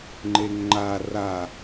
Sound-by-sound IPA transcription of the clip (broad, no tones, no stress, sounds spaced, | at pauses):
ŋ͡ǃ e ŋ ŋ͡ǃ a r a